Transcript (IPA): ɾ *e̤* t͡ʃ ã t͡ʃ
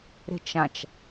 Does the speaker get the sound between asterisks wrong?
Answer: no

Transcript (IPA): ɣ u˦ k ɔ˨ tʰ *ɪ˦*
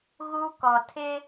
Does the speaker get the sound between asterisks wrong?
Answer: no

